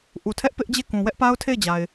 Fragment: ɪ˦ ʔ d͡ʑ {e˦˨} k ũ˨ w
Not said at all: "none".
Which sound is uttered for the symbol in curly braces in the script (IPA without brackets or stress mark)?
e˦˨